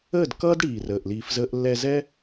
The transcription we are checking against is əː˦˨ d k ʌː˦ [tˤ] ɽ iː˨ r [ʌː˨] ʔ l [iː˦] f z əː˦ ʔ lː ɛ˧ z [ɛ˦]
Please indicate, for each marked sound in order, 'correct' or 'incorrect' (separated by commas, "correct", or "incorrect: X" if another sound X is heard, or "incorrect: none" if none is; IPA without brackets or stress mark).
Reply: incorrect: d, incorrect: əː˨, incorrect: iː˧, correct